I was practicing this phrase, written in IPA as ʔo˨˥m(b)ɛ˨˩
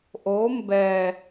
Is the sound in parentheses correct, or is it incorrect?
correct